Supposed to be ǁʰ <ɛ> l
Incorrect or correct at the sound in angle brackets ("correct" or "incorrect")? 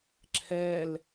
correct